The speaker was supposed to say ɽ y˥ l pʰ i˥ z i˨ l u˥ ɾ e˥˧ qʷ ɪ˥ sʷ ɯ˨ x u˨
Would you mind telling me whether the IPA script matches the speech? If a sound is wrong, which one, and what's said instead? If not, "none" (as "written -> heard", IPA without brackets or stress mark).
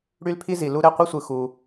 ɪ˥ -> i˥